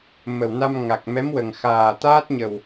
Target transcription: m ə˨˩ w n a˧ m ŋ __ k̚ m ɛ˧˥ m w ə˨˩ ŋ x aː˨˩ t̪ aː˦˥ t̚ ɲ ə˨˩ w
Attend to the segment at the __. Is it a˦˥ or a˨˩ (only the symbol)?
a˨˩